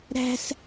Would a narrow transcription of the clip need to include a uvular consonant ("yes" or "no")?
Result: no